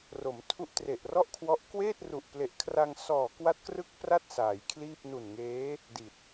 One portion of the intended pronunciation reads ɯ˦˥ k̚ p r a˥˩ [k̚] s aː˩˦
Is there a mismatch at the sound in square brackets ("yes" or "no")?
yes